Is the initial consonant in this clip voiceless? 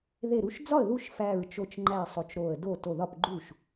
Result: no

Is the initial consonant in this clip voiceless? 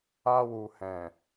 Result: no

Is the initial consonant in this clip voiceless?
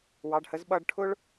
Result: no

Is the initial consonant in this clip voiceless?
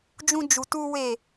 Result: no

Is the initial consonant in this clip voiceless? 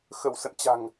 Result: yes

